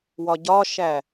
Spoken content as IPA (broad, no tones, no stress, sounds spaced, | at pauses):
w ɒ ɟ ɒ ʃ æ